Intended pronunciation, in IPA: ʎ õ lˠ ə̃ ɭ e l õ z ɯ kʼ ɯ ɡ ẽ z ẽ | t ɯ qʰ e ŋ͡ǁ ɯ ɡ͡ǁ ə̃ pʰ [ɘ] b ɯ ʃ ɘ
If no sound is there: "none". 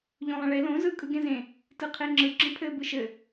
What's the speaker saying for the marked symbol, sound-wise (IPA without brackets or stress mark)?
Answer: ɘ